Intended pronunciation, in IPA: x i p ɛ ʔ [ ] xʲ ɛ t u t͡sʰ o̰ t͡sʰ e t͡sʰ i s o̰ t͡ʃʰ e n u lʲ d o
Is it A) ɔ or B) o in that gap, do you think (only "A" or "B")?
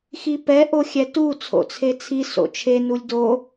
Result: B